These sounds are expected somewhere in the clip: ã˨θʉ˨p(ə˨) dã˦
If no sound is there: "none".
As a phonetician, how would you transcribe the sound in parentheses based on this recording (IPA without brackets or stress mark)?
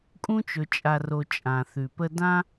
ə˦